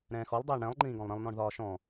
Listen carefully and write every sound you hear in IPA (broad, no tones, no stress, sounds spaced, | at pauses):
ɾ ɛ̃ː x ɔ lˠ dˤ ɛː ɳ ɽ ɛ̃ lˠ ŋ͡ǃ ĩː ɡ ɔ̃ lˠ ɾ ĩ lˠ n ɔ̃ ɳ ð ɒː ʃ ɔ̃